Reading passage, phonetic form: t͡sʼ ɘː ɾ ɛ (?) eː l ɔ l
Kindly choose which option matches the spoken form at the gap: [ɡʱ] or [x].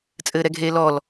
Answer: ɡʱ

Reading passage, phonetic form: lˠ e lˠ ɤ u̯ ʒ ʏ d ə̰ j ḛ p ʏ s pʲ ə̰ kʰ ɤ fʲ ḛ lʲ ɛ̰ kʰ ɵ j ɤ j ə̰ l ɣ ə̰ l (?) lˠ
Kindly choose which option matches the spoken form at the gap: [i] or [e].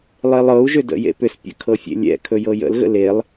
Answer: e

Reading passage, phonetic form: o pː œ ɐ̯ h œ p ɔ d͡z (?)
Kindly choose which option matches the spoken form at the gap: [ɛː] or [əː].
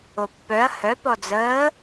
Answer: əː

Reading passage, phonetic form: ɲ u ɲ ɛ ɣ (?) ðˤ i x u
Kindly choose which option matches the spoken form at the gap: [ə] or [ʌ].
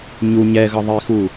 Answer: ʌ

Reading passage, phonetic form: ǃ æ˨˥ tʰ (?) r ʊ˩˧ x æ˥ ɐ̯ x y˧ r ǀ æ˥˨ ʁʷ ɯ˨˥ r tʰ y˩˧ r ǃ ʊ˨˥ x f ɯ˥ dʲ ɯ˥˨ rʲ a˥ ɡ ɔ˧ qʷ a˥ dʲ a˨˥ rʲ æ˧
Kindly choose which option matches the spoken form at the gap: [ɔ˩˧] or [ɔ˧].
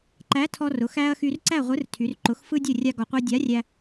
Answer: ɔ˧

